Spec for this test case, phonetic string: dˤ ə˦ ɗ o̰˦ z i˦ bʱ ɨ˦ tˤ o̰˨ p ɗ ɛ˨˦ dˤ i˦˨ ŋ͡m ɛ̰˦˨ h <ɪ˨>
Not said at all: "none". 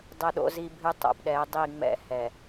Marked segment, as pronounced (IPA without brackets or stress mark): ɛ˨